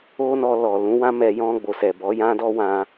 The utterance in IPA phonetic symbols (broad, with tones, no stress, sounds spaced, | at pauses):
o˦ n ɔ˧ l ɔ˨ l ũ˨˦ w ã˦ m ɛ˧ j ɔ̃˧ ɡ͡b o˨ s ɛ˨ b ɔ˨˦ j ã˦ d ɔ˦ w ã˧